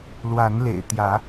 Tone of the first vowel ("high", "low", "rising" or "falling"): rising